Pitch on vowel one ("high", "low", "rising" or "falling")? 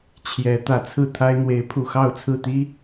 rising